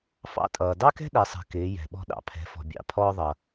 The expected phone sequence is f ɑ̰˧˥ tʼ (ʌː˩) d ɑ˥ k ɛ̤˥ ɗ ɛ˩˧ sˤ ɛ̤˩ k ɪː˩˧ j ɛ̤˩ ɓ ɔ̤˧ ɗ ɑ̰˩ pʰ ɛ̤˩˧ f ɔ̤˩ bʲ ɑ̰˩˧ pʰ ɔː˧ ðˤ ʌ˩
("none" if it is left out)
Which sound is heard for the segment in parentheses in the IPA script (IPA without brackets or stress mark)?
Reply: ʌː˩